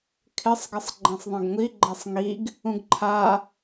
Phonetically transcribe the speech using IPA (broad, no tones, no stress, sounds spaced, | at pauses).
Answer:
kʰ ɪ sˤ ɡ ɪ sˤ ɡ͡ǃ ẽ sˤ ðˤ ẽ ɡ ŋʷ i ɡ͡ǃ ɛ sˤ ŋ i ɡ | ũ ɡ ǃʰ a